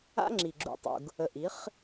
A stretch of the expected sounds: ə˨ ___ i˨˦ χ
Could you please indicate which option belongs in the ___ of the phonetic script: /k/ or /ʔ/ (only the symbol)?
ʔ